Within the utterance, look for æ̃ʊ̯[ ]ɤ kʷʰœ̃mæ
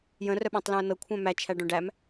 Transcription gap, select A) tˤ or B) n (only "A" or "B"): B